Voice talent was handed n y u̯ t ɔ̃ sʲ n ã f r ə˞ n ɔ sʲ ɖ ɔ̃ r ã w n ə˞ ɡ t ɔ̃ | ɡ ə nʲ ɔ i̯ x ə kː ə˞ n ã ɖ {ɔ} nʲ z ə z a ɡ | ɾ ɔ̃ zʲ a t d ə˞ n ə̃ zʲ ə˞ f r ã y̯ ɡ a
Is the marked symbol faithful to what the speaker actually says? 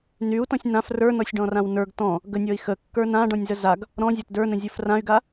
no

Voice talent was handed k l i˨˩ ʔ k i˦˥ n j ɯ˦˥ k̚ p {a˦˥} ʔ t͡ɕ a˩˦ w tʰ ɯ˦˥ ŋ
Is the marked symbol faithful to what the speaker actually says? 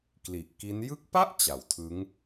no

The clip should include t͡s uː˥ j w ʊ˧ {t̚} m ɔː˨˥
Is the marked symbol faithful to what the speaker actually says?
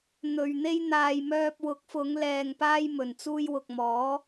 no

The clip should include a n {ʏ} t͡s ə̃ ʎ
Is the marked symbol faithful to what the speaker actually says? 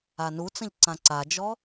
no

